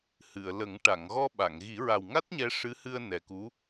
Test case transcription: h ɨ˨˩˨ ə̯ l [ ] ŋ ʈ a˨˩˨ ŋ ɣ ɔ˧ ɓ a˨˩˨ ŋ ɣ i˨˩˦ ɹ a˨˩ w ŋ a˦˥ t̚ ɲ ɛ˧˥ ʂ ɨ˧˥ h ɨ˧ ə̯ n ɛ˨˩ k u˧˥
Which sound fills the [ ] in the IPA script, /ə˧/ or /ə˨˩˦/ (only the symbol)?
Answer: ə˨˩˦